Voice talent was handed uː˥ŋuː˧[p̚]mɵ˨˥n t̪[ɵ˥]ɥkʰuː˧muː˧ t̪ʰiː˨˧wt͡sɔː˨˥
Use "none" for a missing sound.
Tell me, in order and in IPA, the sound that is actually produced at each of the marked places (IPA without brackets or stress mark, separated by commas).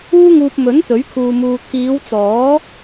p̚, ɵ˨˥